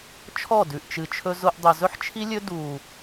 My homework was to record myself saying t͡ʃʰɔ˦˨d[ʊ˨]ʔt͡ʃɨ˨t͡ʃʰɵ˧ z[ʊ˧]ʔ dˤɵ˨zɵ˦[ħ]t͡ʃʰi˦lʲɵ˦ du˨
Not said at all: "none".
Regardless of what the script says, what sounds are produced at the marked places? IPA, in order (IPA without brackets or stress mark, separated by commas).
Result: ʉ˨, ʊ˧, ħ